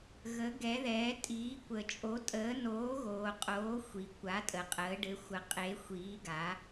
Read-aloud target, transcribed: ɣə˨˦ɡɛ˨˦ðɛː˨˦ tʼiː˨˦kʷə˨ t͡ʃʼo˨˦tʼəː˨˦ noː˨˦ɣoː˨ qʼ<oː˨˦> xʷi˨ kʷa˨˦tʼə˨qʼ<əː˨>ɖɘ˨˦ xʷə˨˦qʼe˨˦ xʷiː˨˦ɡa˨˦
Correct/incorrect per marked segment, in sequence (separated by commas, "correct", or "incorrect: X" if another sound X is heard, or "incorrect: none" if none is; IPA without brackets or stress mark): correct, incorrect: əː˨˦